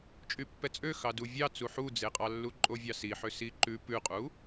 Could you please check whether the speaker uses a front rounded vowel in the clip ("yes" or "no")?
yes